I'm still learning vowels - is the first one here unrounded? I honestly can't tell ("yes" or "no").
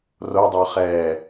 no